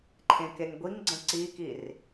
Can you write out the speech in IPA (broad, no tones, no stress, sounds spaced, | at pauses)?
ǃʰ ẽ k e ŋ ɡʷ i ŋ ɡ͡ǀ ə̃ ǀ i k i r